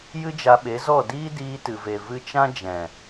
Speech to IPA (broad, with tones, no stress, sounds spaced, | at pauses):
j ɨ˦ d͡ʒ a˧ ɓ e˨˦ z ɔ˦˨ d iː˦ d iː˧ t ɨ˨ v e˨ v ɨ˧ t͡ʃ ã˦ d͡ʒ ɛ̃˨